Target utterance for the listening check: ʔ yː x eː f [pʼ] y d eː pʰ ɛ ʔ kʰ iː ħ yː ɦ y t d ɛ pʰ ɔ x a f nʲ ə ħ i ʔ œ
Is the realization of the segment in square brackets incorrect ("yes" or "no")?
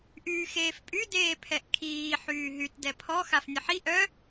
no